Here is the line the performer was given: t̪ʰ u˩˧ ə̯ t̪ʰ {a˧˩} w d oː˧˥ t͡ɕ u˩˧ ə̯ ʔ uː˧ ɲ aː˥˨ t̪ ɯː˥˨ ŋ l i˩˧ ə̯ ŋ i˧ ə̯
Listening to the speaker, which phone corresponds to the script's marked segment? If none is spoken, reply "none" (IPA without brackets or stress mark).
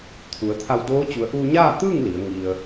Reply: a˧